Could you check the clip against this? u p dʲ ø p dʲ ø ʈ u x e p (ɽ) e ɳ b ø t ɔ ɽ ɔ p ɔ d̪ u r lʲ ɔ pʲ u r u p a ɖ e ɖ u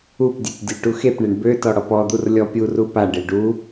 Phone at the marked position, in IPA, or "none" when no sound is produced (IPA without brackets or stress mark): ɳ